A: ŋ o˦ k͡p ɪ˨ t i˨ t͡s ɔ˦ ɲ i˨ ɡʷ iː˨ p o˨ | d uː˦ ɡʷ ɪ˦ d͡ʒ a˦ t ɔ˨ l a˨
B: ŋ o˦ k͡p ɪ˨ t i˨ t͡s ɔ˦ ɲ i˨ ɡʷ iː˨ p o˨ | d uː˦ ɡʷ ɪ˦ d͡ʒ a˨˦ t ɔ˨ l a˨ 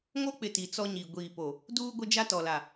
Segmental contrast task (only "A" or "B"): A